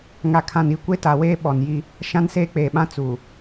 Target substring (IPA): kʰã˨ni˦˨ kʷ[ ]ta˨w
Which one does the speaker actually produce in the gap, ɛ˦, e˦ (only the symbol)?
e˦